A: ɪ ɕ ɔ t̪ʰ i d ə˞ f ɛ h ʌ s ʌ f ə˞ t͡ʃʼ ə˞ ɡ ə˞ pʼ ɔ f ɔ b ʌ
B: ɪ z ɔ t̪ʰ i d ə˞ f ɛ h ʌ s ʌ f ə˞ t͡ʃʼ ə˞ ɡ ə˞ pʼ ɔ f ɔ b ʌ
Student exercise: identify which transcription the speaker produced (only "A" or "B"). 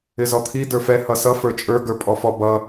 B